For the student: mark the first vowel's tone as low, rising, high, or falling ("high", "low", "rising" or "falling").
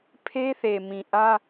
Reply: high